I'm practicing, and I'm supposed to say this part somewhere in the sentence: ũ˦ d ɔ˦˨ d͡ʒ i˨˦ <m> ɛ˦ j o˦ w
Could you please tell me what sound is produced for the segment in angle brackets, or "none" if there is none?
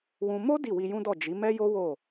m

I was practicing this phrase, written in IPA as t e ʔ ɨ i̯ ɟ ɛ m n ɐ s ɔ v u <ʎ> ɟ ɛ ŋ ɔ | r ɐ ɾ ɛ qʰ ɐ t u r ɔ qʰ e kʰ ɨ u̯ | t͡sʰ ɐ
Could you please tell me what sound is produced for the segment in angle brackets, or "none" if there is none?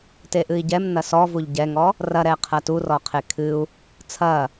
ʎ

